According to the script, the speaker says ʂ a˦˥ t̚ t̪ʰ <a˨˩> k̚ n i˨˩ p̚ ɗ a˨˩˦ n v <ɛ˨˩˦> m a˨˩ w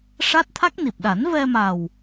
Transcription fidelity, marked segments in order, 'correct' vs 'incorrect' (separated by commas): incorrect, incorrect